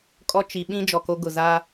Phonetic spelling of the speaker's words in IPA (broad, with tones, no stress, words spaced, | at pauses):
kʼɔ˦t͡ʃi˨ ɓĩ˦ d͡ʒɔ˨ko˦ ɡʊ˨ za˦